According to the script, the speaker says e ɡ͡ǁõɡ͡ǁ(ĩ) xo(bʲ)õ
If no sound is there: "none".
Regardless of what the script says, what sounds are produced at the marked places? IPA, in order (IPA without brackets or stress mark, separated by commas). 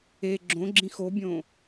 ĩ, bʲ